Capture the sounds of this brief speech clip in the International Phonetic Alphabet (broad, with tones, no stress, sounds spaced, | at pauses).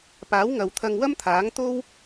p aː˨˥ w ŋ ɐ˨ w t̪ʰ ɐ˧ ŋ w ɐ˥ m t̪ʰ aː˨˥ ŋ t̪ o˥ w